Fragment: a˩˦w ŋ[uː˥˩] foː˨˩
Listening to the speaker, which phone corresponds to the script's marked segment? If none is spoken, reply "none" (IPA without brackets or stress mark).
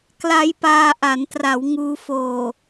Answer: uː˧